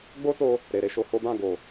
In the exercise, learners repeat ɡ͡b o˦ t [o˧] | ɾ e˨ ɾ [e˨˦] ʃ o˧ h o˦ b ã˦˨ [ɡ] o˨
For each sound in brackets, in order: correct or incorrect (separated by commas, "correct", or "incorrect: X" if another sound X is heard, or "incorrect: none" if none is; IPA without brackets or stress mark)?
correct, correct, correct